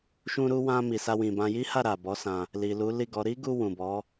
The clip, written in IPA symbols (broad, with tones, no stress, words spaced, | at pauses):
ʃũ˧ɾu˧wã˧ mi˨sa˧wĩ˨bã˧ ji˦ha˦˨ ɾa˨bɔ˨˦ sã˧ | li˨lu˨˦li˦˨ɡɔ˨˦ ɾi˦ɡu˧ wũ˨bɔ˨˦